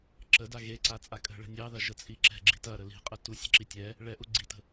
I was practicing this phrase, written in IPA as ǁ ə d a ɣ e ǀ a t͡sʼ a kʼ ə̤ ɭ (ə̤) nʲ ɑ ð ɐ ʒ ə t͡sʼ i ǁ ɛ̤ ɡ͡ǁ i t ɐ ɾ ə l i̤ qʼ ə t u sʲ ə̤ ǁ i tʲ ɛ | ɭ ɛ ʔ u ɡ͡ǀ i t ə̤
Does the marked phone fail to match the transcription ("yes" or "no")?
no